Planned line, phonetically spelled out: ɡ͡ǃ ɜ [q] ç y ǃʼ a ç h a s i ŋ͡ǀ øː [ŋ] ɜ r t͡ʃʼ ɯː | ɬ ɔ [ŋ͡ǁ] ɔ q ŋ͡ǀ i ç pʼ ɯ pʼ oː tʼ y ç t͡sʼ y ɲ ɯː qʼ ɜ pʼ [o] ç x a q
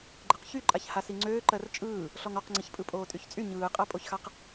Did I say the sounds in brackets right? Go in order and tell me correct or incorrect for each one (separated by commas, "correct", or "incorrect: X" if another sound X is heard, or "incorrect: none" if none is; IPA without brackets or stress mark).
correct, incorrect: ǃ, incorrect: ŋ, correct